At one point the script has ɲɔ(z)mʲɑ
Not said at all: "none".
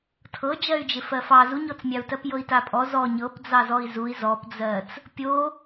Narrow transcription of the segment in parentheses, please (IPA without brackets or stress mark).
t͡s